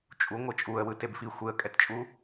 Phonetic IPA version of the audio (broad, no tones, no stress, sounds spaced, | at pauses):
t͡ʃʼ u ŋʷ ɯ t͡ʃʼ u ə̯ w ɯ t e b f i xʷ e ə̯ kʼ ɛ t t͡ʃʼ u